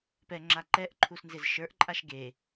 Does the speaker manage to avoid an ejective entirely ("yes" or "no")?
no